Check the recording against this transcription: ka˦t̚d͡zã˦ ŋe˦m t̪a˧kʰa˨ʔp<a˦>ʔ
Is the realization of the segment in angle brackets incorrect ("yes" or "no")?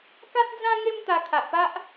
no